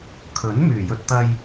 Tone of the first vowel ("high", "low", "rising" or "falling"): rising